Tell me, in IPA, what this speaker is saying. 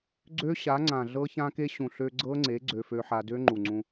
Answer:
ɡ͡ǀ ø˦˥ ɕ a˩˥ ŋ͡ǀ ã˨˩ ɮ ɤ˧ ç ã˧ k e˧ ɕ ũ˨˩ ɬ ø˧ ɡ͡ǀ ɤ˦˥ ŋ͡ǀ e˩˥ ɡ͡ǀ ø˧ f ø˧ ħ a˧ d ø˦˥ ŋ͡ǃ u˨˩ ŋ͡ǀ ũ˧

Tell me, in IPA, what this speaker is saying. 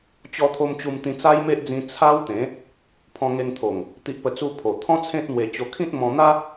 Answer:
t͡ɕ ɔ˧ t̪ʰ o˧ m t͡ɕ u˧ m t̪ ĩ˧ t͡s a˦ j m e˦ ʔ d͡z ĩ˧ t͡sʰ a˦ w t̪ ẽ˨˦ | pʰ ɔ̃˧ ŋ e˧ ŋ t̪ʰ o˨˩ ŋ | t̪ i˨ ʔ p ə˨˩ t͡s u˧ pʰ o˨˩ t̪ʰ ɔ̃˦ t͡sʰ ẽ˦ t̚ n̪ w e˧ t͡ɕ o˧ kʰ ĩ˦ t̚ m ɔ̃˧ n̪ a˦

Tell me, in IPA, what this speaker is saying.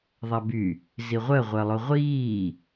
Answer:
ðˤ a b y | z i ʁʷ ɜ ʁʷ ɜ lˠ o ʁʷ iː

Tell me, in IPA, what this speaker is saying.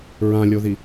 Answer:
ɹ ã lʲ o ð i

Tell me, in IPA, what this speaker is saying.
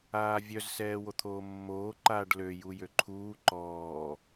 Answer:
aː vʲ œ z s ɛː w o t̪ʰ oː mː oː ǃ aː ɖ l ø j u j ø ǃʰ uː ǃ ɔː

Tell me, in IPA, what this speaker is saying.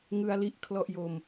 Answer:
ŋ ɯ˧ a̯ l i˦˥ ʔ kʰ l ɔ˥˩ ʔ j o˧ m

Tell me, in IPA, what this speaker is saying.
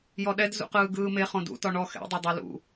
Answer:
j ɔ ɗ ɛ d z ṵ q ɯː ɡ ɯː m e χ õ d ṵ t ɔ ɳ ɔ x ɛ̰ dˤ ɛ dˤ o l ṵ

